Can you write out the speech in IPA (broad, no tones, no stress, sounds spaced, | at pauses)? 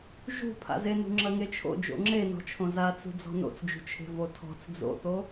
ʒ ṳ pʰ a̰ z e n ṳ ŋ͡ǁ ɐ ŋ e t͡ʃʰ o̰ d͡ʒ o̰ ŋ͡ǁ e n ɔ̤ t͡ʃʰ õ z a t͡s ṳ d͡z ɔ̤ n o̰ t͡s d͡ʒ ṳ t͡ʃʰ e̤ v o tʰ ɔ̤ t͡s d͡z o̰ θ o